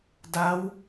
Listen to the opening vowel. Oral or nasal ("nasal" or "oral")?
oral